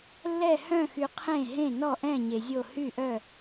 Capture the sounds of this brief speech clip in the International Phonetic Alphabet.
lː ɛ˧˩ h œ̃˧˩ x y˩ qʰ ẽ˧˩ ɦ ẽ˧˩ n ɔ˧˩ ʔ ɛ̃˧˩ ɲ e˩ zʲ o˧˩ h y˧˩ ʔ œ˧˩

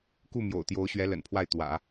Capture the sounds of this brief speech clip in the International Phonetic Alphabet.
k u˥˩ m j o̰˨˩ ʊ̯ t̪ j o˧˥ ʊ̯ ɕ ɥ ɛ˧˥ l ə̰˨˩ n pʰ w a˥˩ ɪ̯ t̪ w ä̰˨˩˦

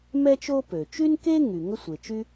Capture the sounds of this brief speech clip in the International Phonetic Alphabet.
m ɛ˥ t͡ʃ o˥ p ø˩ t͡ʃ y˥ n k e˥ ŋ y˩ ŋ ə˥ sʷ e˩ t͡ʃ y˥

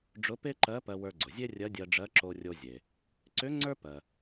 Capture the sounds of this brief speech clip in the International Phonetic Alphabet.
ɖ͡ʐ ʊ˧˥ p e˥ ǃ ɜ˧˥ p ɜ˧ w ə˞˧ ɡ͡ǀ ʊ˩ zʲ e˥ rʲ ɜ˧˥ dʲ ɜ˧ ɖ͡ʐ ɜ˧˥ ǁ o˧ rʲ o˧ zʲ e˩ | ǀ ʏ˧˥ ŋ͡ǀ ə˞˥ p ɜ˩

